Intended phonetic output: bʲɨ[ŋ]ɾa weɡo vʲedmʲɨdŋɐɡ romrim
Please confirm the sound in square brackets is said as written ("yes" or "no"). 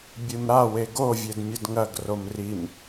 no